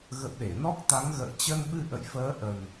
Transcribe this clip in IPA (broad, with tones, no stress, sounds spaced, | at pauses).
ɣ ə̰˧˨ w ɗ e˧˩ n ɔ˦˥ k̚ t̪ a˨˦ ŋ ɣ ə̰ː˧˨ t͡ɕ ə˧ n ɓ ɨ˧ ʔ ə̰˧˨ j f əː˨˦ ʔ ə˨˩ n